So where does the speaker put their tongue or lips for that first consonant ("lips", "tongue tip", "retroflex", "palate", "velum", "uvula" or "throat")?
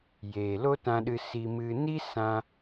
palate